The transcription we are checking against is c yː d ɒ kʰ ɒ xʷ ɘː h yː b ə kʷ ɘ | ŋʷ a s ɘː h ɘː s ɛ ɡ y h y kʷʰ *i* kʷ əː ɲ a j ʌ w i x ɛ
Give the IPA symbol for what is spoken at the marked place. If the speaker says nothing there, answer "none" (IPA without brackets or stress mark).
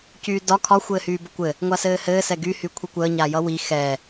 i